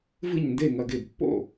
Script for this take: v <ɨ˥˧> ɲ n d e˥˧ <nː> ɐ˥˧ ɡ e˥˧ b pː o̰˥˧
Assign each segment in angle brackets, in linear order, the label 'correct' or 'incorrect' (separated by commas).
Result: correct, incorrect